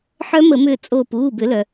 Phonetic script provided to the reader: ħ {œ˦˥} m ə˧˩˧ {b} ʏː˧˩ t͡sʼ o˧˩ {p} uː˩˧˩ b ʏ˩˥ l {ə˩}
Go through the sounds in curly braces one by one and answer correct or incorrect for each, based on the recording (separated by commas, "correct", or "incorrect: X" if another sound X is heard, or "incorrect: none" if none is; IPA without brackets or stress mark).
correct, incorrect: m, correct, incorrect: œ˩